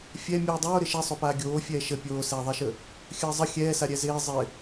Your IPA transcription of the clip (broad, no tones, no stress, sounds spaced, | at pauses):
fʲ ɛ mʲ uː dˤ oː ɾ ɪ ʃ ɛ sˤ o p aː ɡʲ oː fʲ ɛː ʃ ə pʲ oː s ɛː ðˤ ɛ ʃ ə | xʲ əː zˤ ə xʲ ɛː s a ɾʲ ɛ z ɪː zˤ ɪ